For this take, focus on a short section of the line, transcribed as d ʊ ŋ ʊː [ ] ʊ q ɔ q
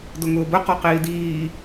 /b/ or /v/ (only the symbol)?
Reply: b